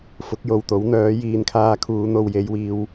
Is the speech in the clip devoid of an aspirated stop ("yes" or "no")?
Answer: no